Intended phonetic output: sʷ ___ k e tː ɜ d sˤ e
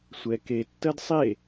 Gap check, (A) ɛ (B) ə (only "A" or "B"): A